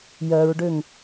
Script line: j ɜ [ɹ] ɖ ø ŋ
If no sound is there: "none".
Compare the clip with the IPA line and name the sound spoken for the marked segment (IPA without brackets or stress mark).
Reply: ɹ